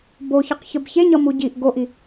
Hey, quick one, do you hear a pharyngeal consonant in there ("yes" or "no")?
no